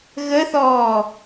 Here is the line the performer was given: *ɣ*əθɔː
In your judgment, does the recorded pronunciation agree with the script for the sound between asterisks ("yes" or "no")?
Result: yes